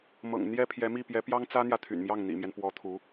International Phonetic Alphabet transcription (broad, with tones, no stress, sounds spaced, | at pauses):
m ɤ̰˨˩ ŋ n̪ j ɛ˥ pʰ j ɛ˧˥ m i˥˩ p j ɛ˧˥ p j ɑ˥ ŋ t͡s ä˥ n̪ j ä˨ t̪ʰ y̰˨˩ n m j ɑ˥˩ ŋ n̪ ḭ˨˩ m j ɛ˦ n p w ɔ˧˥ t̪ʰ u˧˥